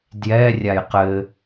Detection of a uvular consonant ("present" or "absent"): present